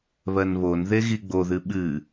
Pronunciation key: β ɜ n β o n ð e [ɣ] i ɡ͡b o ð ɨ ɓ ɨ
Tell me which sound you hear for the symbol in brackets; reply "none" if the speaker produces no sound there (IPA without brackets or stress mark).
ɣ